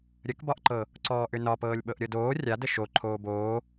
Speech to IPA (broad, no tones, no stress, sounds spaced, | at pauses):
ɾʲ ə k b ɒ ʔ ǃ ɤ | ǀ ɔː ʔ ʏ n ɒ p ɤː lʲ ɓ ɤ ʔ ɾʲ ɤ d oː rʲ a d ə ʃ o ǃʰ oː b oː